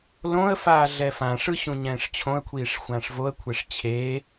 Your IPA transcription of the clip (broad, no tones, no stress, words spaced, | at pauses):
lõə̯faː ɮɛfãʂɯ ɕũɲɛ̃ːʂt͡ɕʰõə̯kʷʰiːʂ xʷãːʂvoə̯kʷʰeʂ t͡ɕʰe